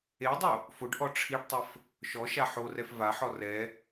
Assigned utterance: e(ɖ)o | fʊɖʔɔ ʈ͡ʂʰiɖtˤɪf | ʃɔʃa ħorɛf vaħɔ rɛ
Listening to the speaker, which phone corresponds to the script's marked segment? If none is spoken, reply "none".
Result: dˤ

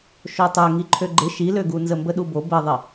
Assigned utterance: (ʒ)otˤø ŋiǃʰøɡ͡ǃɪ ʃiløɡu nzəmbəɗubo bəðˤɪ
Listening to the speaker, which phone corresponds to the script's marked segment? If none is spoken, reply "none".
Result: ʃ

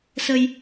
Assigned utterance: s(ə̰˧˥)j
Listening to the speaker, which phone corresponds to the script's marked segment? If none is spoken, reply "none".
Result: ə˧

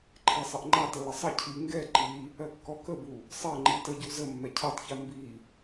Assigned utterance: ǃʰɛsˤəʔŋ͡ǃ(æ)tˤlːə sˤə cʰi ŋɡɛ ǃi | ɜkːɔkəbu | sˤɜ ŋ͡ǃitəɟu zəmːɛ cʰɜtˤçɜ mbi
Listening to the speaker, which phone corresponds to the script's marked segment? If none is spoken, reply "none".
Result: a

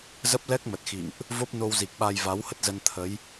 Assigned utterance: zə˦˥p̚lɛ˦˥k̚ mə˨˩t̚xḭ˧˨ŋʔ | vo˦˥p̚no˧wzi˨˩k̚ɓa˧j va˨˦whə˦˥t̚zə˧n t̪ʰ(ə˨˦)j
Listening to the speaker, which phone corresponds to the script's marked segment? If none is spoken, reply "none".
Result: ə˨˦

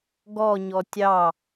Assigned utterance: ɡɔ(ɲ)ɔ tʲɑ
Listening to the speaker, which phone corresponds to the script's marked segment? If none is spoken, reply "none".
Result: ɲ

